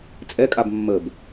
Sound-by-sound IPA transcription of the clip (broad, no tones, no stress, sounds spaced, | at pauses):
t͡sʼ ɛ kʼ a b mː ə b